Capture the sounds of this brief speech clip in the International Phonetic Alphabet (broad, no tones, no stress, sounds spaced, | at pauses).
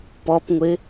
p ɔ p ŋʷ ɪ